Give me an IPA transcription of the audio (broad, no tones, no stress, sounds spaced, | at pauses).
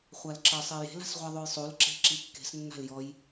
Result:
χʷ a l ǁ ɤ sˤ e j e̤ l a̤ s ʁʷ a ðˤ o j sˤ u l ǁ e̤ ǁ i kː e̤ s nː a̤ l j ɔ j